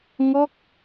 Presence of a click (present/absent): absent